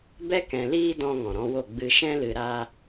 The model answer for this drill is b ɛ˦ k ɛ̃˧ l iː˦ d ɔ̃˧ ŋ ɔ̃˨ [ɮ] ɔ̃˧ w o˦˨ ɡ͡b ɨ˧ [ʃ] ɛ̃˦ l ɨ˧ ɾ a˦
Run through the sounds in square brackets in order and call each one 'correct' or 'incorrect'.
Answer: incorrect: ɾ, correct

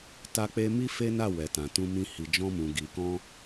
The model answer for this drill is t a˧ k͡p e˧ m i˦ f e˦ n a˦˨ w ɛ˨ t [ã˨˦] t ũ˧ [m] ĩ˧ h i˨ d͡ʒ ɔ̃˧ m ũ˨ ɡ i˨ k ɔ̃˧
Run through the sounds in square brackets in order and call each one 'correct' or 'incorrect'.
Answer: incorrect: ã˨, correct

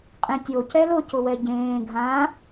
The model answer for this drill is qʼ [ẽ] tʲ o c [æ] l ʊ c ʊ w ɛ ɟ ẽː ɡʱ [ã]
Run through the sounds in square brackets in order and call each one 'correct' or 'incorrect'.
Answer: correct, incorrect: ɛ, correct

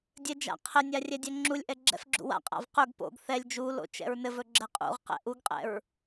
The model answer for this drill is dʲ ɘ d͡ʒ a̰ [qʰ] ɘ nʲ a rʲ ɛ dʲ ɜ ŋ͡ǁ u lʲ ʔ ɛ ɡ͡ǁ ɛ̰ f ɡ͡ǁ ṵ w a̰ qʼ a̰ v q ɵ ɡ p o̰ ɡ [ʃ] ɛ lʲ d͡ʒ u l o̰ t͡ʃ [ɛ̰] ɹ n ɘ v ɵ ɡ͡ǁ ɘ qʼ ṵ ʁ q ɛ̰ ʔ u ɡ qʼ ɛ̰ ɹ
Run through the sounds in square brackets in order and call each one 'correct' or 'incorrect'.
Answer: correct, incorrect: θ, correct

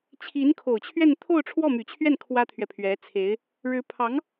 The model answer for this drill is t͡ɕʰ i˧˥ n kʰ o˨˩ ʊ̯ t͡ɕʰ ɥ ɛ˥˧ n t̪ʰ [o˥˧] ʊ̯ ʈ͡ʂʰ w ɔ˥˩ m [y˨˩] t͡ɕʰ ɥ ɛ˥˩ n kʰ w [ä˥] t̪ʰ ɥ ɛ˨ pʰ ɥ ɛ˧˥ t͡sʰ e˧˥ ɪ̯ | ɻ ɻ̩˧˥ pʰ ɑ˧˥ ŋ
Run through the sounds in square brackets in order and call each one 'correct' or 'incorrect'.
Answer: correct, correct, correct

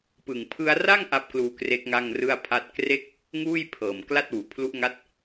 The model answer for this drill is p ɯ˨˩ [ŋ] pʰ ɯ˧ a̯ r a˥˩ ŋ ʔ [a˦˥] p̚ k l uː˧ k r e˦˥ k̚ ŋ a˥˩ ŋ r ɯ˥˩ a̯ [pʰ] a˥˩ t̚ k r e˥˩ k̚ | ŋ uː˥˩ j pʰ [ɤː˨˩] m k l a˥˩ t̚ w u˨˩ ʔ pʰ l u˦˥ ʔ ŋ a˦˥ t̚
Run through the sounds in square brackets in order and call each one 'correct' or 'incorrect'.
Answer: correct, correct, correct, correct

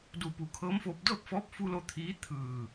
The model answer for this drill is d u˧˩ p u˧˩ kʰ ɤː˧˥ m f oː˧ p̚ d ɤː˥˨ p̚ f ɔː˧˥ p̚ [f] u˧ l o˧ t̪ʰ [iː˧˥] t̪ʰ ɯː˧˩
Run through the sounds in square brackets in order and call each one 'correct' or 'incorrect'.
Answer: correct, correct

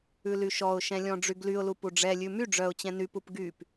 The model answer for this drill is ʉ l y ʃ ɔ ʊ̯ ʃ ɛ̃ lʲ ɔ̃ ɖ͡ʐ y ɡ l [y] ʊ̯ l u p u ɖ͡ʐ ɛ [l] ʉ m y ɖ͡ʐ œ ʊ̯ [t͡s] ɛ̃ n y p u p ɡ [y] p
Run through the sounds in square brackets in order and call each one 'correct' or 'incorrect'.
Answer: correct, incorrect: lʲ, incorrect: t͡ɕ, correct

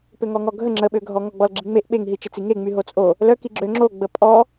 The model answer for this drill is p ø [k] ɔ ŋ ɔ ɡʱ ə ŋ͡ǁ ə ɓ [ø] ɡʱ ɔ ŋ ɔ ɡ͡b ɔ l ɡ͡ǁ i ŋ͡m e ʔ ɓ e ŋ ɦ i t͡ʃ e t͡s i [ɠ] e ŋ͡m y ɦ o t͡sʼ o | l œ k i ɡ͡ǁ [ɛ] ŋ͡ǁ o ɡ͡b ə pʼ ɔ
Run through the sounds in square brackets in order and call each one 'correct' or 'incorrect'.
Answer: incorrect: ŋ, correct, incorrect: ŋ, incorrect: ø

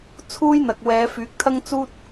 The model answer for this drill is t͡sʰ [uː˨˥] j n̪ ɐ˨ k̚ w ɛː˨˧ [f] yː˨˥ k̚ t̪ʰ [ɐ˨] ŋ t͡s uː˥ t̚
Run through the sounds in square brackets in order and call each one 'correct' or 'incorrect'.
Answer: incorrect: uː˥, correct, incorrect: ɐ˥

